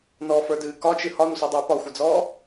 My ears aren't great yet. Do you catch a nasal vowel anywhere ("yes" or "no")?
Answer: no